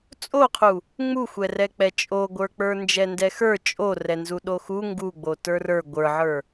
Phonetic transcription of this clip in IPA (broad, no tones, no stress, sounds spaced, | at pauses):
t͡sʼ o qʰ u | ŋ͡m u xʷ ɛ r ɛ k͡p ɛ t͡ʃʼ o ɡʷ ə˞ k͡p ə˞ n d͡ʒ ɛ n d ɛ x ə˞ t͡ʃʼ o r ɛ n z u ɗ o x u ŋ ɡ u ɡ͡b o t ə˞ r ə˞ ɡʷ ə˞ ʕ ə˞